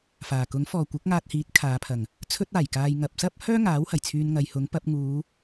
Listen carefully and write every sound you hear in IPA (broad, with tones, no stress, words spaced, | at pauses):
faː˨˩kʊ˨˥ŋfɔː˨ kʷɐ˨˥k̚ŋaː˧t̚hiː˨˥t̚ kʰaː˨˧pʰɐ˨˩ŋ | t͡sʰɵ˥t̚aː˨˩jkaː˧j ŋɐ˨p̚sɐ˥p̚ hœː˥ŋaː˨˥whɐ˨˩j t͡sʰyː˧nŋɐ˨˧jhʊ˨˥ŋ pɐ˨˥p̚ ŋuː˨˧